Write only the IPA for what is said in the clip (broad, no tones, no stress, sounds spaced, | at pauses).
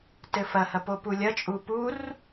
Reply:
t ɘ f ɐ h ɐ p o p u lʲ ɐ t͡ʃʼ u p u r